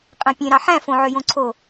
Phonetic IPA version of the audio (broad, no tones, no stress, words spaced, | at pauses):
qʼẽpʲẽ ɾɑħæ̃ fõʕøjõǀʰo